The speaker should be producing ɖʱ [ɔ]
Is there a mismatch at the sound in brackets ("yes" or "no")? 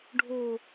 yes